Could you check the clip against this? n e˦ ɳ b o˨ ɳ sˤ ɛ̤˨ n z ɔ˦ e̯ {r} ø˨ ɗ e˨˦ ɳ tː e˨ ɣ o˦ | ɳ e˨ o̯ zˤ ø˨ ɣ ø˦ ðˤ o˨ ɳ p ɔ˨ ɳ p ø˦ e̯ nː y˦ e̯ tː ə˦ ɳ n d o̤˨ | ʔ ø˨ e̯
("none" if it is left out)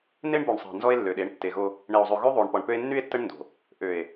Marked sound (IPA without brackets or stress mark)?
lː